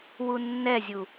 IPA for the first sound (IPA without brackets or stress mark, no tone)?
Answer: w